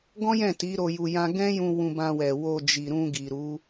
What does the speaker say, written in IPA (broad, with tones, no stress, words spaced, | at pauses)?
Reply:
ɡɔ̃˦jɛ̃˦˨ ti˨˦ ɾo˧ju˧ jã˦ ɡɛ̃˦jũ˧ wũ˧bã˧wɛ˨ wo˧d͡ʒi˨ɾũ˧ɡi˨ ɾu˨˦